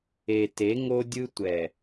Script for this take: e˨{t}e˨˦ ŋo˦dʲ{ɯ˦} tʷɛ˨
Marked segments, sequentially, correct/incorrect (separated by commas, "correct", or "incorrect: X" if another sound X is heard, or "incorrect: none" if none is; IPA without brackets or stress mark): correct, correct